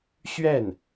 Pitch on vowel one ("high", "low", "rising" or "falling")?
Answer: falling